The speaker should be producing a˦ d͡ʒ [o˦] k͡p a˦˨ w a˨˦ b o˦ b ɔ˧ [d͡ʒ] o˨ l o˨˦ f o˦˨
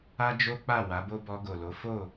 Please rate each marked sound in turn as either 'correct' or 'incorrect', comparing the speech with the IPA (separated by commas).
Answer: correct, incorrect